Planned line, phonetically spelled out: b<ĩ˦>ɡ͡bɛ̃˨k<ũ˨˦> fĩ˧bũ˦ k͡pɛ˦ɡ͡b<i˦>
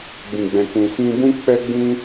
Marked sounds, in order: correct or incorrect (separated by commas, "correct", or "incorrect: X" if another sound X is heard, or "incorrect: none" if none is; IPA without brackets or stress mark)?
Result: incorrect: ĩ˨, incorrect: ũ˨, incorrect: ĩ˦